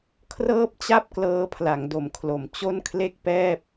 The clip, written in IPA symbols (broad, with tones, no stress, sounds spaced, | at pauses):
kʰ r ɤː˥˩ p̚ t͡ɕ a˥˩ p̚ k l ɤː˦˥ pʰ l a˩˦ ŋ d o˩˦ m kʰ l o˩˦ m t͡ɕ o˥˩ n kʰ l e˥˩ k̚ p ɛː˥˩ p̚